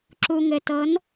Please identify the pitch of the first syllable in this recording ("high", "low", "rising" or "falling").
low